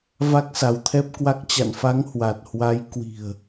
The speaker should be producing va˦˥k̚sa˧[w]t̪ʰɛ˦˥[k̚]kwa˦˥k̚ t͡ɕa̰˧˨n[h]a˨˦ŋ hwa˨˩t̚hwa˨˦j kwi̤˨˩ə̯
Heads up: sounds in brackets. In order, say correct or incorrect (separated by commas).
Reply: correct, incorrect, incorrect